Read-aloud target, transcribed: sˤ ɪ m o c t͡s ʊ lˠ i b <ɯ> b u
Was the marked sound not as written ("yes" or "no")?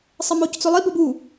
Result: yes